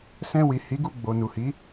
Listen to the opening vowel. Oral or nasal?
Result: nasal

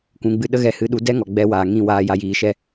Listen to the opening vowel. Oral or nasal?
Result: nasal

